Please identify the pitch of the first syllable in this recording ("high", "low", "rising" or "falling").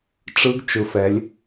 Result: rising